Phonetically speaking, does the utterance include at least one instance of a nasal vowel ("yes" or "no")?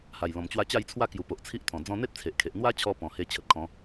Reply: yes